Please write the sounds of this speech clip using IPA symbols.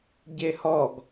ɟehɔɡ

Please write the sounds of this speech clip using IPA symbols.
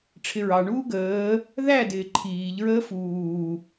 ʈ͡ʂʰɪɹɑɳuː ɡəː | ðæ dɪːǃʰiːʎɹəː fuː

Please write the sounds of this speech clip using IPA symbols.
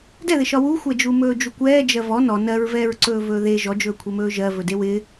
dɛðɪʃɒ wuxʷɛd͡ʒu mɵːd͡ʒukʷɛː d͡ʒɜvɔ nɔ nɜɹvɛːɹ ǀɵːvɵːðe ʒɔd͡ʒɵːkʷʰemɵː ʒɜ vɵdewɪː

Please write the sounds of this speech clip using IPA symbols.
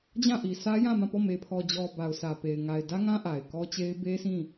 d͡ʑã˦˨ʔi˨ sʰä˦ jã˦˨mã˦˨pɔ˦˨ me˨pʰɔ˨d͡ʑɔ˨ ba˨ʊ̯sʰä˨pe˨ɪ̯ ŋa˨ɪ̯dä˦ŋã˦ ʔa˨ɪ̯kɔ˦t͡ɕe˦ɪ̯ be˦sʰĩ˦˨

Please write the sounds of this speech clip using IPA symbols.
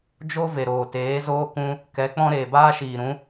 d͡ʒo˦ ve˨ɾoː˨teː˨˦ zoː˦kũ˦ | kɛ˨˦k͡pɔ̃˦ ɾeː˨baː˦ʃiː˨ɾũ˨˦

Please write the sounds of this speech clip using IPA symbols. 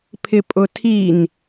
pʰɪpʼʊtʰin

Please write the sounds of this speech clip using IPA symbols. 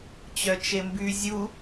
t͡ɕœt͡ʃemby zʲu

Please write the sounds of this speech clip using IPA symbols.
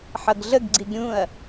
ħʌɡɮəɡɡ͡ǀiɡ ɾʲũɐ̯

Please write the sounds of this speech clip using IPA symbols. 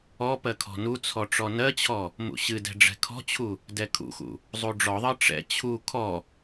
ɔ pɜkʰɔ̤nut͡sʰɔ ʈ͡ʂɔnɜt͡ɕʰɔ | mṵɕɨdɛ̤ ɖ͡ʐɛ̤kʰɔ̤t͡ɕʰu | dɛkʰṵxṵ | zˤuɖ͡ʐɔðˤɜ ʈ͡ʂɛ̰ t͡ɕʰu kʰɔ

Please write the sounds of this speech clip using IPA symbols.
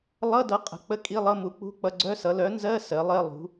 lˠʌ˧˥˧dʌ˩˥ qʼə̤˩˥k͡pə˧˥˧ kʼi˧˥˧lˠʌ˧˥˧mu˩˥ k͡pṳ˧˥˧k͡pʌ˧˥˧ ɡ͡ǀœ˧˥˧sʌ˩˥ lœ˩˥nzɜ˧˥˧ sɜ˩˥lˠɜ˧˥˧ lˠṳ˩˥

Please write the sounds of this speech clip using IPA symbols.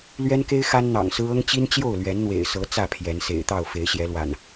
lɥɛ˦nke˦ɪ̯ xa˦nn̪ɑ̰˨˩ŋsɹ̩˦ ɤ˦ŋt͡ɕi˦nt͡ɕjo˥˨ʊ̯ lɥɛ˨˦nn̪wḛ˨˩ɪ̯sɤ˨˦ t͡sä˥˨pʰjɛ˨˦nsḛ˨˩ɪ̯t̪ɑ˥˨ʊ̯ fe˨˦ɪ̯ɕjɛ˨˦lwa̰˨˩n

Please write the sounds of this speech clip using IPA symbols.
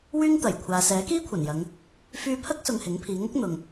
wyː˥ŋt̪ɐ˨˩jkʷʰaː˨ sɛː˨˥kiː˥kʷʰɐ˨˩n jɐ˨˧ŋ | fyː˧pʰɐ˥k̚ sʊ˧ŋhɪ˨˥ŋpʰiː˨˧ ŋʊ˥k̚ n̪ʊ˨ŋ

